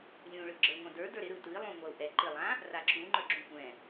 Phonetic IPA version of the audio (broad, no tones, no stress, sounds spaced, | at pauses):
lʲ ũ ɭ ɯ ɡ͡ǁ ə˞ ŋʷ ã d ə˞ d ə˞ ɾ ɪ ɾ ɯ t ɯ i̯ lˠ ũ ŋʷ a u̯ ʔ ɛ ǃ ɪ lˠ ã | r a ǁ u ŋ͡ǃ ə˞ ɡ͡ǁ ũ kʷ ɛ̃